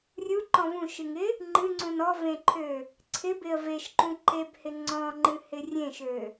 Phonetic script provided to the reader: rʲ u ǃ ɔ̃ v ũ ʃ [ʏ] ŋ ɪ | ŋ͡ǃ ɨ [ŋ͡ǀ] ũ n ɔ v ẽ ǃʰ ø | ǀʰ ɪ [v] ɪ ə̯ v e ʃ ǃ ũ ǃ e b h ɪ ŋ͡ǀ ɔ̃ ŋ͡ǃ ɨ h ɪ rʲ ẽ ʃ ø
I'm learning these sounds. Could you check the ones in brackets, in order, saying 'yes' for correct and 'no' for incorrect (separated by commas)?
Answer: no, yes, no